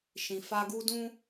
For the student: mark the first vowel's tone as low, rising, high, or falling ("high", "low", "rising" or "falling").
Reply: low